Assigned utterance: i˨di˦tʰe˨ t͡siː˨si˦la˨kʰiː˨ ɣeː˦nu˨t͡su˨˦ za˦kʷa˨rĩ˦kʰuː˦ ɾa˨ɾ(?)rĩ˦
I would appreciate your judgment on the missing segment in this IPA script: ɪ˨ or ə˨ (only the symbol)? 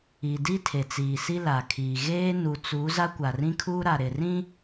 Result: ɪ˨